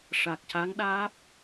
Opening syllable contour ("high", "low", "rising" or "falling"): low